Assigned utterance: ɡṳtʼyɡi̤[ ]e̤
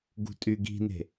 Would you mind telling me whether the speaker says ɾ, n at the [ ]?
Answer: n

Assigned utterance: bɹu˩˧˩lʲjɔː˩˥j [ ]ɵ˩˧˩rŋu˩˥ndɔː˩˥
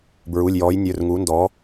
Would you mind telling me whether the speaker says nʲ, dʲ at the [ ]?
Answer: nʲ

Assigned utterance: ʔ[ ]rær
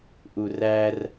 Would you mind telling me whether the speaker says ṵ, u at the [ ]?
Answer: u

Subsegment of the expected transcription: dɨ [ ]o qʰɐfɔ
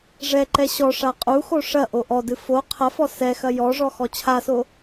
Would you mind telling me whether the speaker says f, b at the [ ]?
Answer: f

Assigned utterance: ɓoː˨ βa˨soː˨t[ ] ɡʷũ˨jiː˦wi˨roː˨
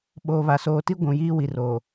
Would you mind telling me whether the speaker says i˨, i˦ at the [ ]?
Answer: i˦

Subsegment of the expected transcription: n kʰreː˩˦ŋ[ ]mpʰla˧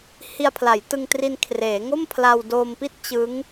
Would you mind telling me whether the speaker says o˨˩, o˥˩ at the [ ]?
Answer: o˥˩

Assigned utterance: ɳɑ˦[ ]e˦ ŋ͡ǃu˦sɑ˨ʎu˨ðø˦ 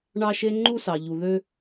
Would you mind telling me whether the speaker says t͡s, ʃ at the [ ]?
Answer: ʃ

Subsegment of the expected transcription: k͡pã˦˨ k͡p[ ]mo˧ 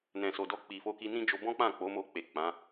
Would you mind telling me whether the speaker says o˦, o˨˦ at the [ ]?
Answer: o˨˦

